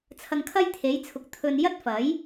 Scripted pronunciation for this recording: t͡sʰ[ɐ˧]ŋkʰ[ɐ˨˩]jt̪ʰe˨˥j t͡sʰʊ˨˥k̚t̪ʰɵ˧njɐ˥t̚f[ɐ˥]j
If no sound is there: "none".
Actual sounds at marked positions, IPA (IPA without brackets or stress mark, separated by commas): ɐ˧, ɐ˥, ɐ˨˥